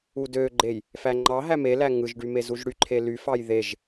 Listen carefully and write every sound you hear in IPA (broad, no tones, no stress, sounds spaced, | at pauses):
u d ø ɡ͡ǃ e j | f æ ŋ͡ǃ ɑ ɦ æ m e l æ ŋ ɯ ʒ ɖ y m e z u ʒ ɽ y ǃʰ e l y f ɑ j ð e ʒ